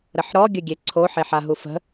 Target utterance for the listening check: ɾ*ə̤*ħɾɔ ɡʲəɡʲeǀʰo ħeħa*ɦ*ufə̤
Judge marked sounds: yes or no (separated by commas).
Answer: no, yes